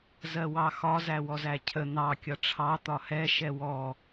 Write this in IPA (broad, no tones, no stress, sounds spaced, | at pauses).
z ɜ w ɑ x ɒ z æ w ɔ z æ cʰ ə n̪ ɑ kʲ ʌ ʈ͡ʂʰ ɑ t̪ ɒ h ɛ ʃ ɛ w ɔ